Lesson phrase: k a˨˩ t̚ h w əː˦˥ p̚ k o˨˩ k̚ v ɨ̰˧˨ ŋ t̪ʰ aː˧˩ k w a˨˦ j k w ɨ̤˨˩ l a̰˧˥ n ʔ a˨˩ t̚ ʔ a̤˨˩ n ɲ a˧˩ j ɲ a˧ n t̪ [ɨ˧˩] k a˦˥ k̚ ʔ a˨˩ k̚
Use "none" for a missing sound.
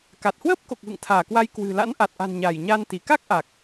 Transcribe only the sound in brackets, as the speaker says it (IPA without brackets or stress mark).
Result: i˧˩